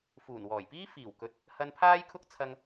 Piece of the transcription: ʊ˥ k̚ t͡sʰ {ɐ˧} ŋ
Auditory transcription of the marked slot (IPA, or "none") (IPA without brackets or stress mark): ɐ˧